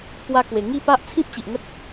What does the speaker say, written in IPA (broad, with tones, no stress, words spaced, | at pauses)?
pwa˦kwe˨˩ ŋi˥˧pa˦ʔ t͡sʰĩ˦p̚ɕi˨ʔŋə˦t̚